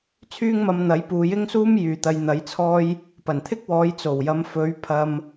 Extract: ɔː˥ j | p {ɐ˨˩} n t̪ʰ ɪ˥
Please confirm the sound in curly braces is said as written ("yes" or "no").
yes